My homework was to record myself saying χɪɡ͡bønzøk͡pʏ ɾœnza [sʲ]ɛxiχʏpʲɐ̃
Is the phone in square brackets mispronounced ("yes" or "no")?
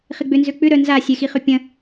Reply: no